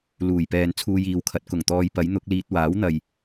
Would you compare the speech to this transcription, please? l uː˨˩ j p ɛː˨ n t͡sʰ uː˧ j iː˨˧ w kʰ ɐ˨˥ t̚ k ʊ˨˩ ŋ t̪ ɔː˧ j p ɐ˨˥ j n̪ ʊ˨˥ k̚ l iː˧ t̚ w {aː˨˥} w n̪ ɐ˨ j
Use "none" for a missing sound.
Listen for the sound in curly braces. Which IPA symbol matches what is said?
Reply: aː˨˥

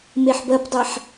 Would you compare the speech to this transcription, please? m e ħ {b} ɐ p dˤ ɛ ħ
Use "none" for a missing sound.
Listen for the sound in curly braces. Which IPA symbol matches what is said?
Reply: b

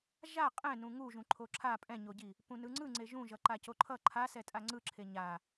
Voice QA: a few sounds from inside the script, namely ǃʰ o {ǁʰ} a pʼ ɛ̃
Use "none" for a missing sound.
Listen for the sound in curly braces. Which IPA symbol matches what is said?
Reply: ǁʰ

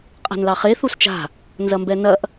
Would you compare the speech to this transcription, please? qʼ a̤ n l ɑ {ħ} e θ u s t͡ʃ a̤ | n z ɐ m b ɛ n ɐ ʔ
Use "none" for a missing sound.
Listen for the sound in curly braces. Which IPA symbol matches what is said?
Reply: χ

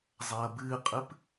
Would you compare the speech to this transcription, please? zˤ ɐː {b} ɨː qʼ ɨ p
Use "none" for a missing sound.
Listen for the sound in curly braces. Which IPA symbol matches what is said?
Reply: b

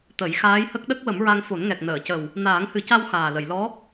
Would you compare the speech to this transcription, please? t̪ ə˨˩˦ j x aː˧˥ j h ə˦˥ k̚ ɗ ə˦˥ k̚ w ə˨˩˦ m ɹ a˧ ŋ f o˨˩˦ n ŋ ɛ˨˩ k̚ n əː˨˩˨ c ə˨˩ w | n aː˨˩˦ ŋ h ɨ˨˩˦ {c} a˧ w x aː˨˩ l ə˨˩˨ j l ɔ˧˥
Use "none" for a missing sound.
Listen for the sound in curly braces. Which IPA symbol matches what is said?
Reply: c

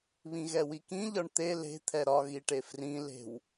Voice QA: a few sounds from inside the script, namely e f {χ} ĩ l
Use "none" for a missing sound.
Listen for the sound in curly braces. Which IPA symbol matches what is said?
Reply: r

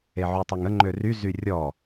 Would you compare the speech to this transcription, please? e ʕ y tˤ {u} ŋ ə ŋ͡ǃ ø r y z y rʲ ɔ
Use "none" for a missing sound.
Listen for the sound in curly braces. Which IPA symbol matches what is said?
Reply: u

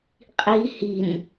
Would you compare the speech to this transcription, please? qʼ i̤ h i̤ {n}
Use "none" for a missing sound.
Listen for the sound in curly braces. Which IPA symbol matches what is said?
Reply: n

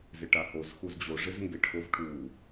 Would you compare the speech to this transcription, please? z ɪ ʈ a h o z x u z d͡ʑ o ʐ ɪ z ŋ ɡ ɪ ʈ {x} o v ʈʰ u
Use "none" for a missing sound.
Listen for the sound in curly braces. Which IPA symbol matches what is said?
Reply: x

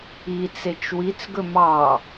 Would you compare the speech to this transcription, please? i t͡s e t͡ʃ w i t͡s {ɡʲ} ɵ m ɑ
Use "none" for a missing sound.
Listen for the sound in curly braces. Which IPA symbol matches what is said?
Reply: ɡ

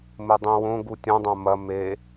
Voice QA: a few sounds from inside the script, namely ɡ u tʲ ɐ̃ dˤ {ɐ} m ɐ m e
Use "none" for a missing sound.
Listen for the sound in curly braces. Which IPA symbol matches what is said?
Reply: ɐ̃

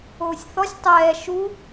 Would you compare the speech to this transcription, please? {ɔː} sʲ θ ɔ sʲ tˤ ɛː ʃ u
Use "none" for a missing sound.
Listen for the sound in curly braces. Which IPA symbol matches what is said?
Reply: oː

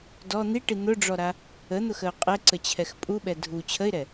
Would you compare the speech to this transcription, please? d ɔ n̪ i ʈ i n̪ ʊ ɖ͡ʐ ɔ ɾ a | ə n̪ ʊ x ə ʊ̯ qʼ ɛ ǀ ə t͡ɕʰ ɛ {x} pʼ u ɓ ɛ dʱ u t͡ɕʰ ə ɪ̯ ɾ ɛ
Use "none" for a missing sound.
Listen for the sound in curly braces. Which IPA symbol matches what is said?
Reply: x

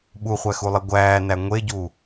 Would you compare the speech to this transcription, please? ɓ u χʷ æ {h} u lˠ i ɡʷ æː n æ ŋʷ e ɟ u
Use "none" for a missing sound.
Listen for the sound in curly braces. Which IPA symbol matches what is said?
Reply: x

